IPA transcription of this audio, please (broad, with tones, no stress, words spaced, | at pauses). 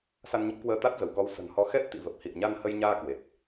sa˧nɲə˦˥p̚kwəː˧ t̪a˦˥t̚zə˧˩wkɔ˨˦w sə̤˨˩nhɔ˨˦ xɛ˦˥t̚t̪ḭ˧˨və˨˩p̚hḭ˧˨ə̯ ɲa˧nhə˧jɲaː˧ kwe˨˩t̚